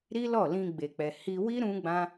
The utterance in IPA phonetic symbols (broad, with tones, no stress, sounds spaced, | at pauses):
ɾ i˦ l ɔ˦˨ l ĩ˧ ɡ͡b e˨ k͡p ɛ˨ h i˧ w i˦ ɾ ũ˦ ɡ͡b ã˦